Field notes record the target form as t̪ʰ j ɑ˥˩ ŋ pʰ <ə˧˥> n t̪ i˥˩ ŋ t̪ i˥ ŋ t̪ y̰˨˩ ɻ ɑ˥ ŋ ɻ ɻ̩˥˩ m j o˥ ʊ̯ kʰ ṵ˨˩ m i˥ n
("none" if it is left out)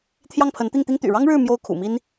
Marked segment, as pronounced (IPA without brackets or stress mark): ə˧˥